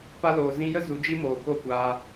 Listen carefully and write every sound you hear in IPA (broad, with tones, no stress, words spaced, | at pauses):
pa˧loː˨ zĩ˧jə˦ zu˨˦d͡ʒi˦ moː˨ko˦˨kʷaː˧